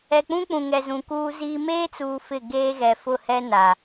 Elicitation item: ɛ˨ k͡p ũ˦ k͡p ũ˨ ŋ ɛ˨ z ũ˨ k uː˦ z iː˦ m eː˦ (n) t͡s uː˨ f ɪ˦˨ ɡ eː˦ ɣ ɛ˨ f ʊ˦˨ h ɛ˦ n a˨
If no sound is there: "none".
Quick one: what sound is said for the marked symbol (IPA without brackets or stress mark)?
none